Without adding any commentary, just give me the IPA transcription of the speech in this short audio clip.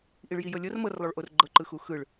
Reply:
ʔ i ɭ j i j ɤ lʲ ɤ r m ɤ r lˠ o ɭ ʔ o r ɡ͡ǃ ɤ ǃ ɯ x u x ɯ ɭ

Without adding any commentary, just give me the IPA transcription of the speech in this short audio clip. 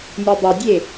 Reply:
nʲ ø dˤ ɜ dʲ e

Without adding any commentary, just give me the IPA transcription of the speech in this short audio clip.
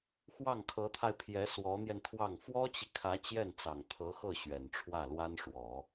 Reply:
x w ɑ˥˩ ŋ kʰ ɤ˧˥ t̪ʰ a˧ ɪ̯ pʰ j ɛ˧˥ s w ɔ˧˥ n̪ j ɛ˧ n t̪ʰ w ɑ˥˩ ŋ f w ɔ˥ t͡ɕ i˨ kʰ ä˧˥ t͡ɕ j ɛ˥˩ n t͡s ɑ˨˩ ŋ t̪ʰ ɤ˧˥ x ɤ˥˩ ɕ ɥ ɛ˨˩ n ʈ͡ʂʰ w ä˥˩ l w a˥ n ʂ w ɔ˨˩˦

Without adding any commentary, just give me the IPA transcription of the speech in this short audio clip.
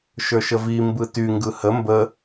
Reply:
ʃ ə˞ ʃ ə v i m b ɯ t y ŋ ɡ ɯ h ə m b ə

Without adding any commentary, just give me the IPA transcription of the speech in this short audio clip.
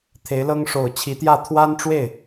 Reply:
t̪ʰ e˧˥ ɪ̯ l ɤ˥ ŋ ʂ o˨˩ ʊ̯ t͡ɕʰ i˧˥ t̪ j ä˥˩ t̪ʰ w a˥ n ʈ͡ʂ w e˥˩ ɪ̯

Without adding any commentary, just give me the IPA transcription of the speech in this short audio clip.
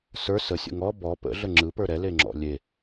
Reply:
s ə˞ s ə sʲ ə̰ ŋ ɔ b ɔ p ə̰ ɮ ə ŋ͡ǁ ɯ p ə˞ ɾ ɛ l e ŋ͡ǁ ɔ̰ lʲ e

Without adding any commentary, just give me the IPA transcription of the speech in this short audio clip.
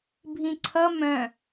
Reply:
bʱ ĩ ǀʰ ʌ m œ̃

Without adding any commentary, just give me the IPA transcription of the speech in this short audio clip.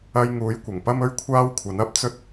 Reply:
ɐ˧ j ŋ uː˨˥ j kʷ ɐ˨˩ ŋ p ɐ˥ m ɵ˥ ɥ kʷʰ aː˥ w kʷʰ ɐ˨˥ n ɐ˥ p̚ t͡s ɵ˥ t̚

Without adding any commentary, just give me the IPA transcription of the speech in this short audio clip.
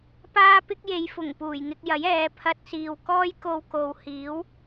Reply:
p aː˥ p ɪ˥ k̚ j e˨˧ j f ʊ˨˩ ŋ p uː˨˩ j ŋ ɪ˧ k̚ j ɐ˨˥ j ɛː˨˧ pʰ ɐ˧ t̚ s iː˨ w k ɔː˥ j k o˧ w k o˨ w h iː˨˥ w

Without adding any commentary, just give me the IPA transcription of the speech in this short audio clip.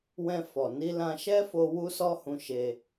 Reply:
w ɛ̃˧ f ɔ˨ n i˧ l ã˧ ʃ ɛ˦ f o˧ w u˦ s ɔ˦ h ũ˧ ʃ e˧

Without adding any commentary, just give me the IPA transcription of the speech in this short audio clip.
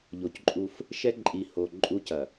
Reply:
ʎ o˨ c ǃʼ u˦ f | ʃ ɛ˦ ǃʼ i˨ h o˨ ǃʼ u˦ c ɐ˨

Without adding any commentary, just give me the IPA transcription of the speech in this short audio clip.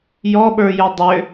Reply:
j ɔ ɓ ə˞ j ʏ dˤ ʏ

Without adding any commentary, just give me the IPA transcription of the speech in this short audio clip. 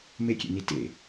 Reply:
m e kʲ ḛ n i t ḛ

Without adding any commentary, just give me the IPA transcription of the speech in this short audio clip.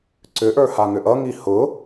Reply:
ǀ ʏ ʔ ə˞ h a ŋ ʏ ʔ ʌ ŋ i h ʊ

